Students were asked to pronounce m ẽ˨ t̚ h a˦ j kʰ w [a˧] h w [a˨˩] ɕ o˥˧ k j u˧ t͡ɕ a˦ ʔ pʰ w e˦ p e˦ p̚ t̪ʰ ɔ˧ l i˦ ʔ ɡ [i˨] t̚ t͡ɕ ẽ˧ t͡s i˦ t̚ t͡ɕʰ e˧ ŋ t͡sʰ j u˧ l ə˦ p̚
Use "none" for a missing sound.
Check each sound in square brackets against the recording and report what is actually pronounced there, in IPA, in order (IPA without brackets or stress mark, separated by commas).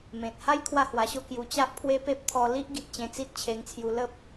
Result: a˥˧, a˧, i˨